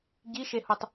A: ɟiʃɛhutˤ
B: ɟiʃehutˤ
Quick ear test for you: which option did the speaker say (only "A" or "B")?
B